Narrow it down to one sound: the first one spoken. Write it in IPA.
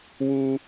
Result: w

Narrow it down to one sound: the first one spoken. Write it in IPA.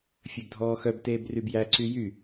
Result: fʲ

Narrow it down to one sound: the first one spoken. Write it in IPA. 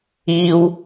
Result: iː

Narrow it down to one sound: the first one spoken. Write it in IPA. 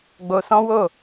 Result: ɡ͡b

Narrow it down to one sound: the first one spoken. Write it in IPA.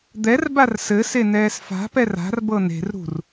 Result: d̪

